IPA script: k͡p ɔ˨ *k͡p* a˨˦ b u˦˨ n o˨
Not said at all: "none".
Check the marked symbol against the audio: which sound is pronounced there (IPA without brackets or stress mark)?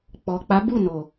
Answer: k͡p